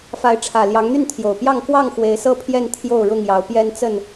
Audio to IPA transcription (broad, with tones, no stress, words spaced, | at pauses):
fa˨˦ɪ̯ʈ͡ʂʰä˨˩ ljɑ˨˦ŋn̪y˥˨nt̪ʰjo˨˩ʊ̯pjɑ˥˨ŋ kwɑ˥˨ŋ xwe˨˦ɪ̯sɤ˥˨pʰjɛ˥˨n t̪ʰjo˥˨ʊ̯ɻʊ˥˨ŋjɑ˨˦ʊ̯pjɛ˦n t͡sə˥˨n